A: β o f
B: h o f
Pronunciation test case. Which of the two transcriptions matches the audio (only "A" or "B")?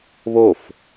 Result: A